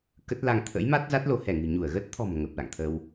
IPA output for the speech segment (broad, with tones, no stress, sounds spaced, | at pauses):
k ə˦˥ t̚ l a˧ ŋ t̪ʰ ə̰˧˥ j m a˦˥ t̚ z a˦˥ t̚ l o˨˦ h ɛ˧˩ ŋ ɨ̤˨˩ ɲ u˧˩ ə̯ ɣ ə˦˥ t̚ t̪ʰ ɔ̤˨˩ m ŋ ə˨˩ p̚ l a̰˧˨ ŋ t̪ʰ ə˧ w